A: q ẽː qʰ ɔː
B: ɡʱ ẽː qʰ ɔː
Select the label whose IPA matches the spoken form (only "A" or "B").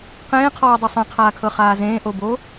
A